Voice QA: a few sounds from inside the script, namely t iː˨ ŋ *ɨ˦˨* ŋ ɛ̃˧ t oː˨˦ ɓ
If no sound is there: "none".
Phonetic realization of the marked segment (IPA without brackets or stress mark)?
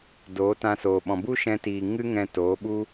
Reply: ɨ˦